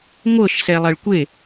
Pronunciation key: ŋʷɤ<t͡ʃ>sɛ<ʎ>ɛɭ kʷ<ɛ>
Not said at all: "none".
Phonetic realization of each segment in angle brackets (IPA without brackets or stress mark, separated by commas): ʃ, lˠ, e